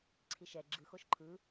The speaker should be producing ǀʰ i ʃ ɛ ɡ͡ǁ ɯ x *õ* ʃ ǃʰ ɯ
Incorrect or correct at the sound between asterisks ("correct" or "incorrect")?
incorrect